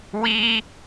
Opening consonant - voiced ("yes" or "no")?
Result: yes